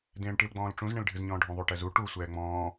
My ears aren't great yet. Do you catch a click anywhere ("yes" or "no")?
no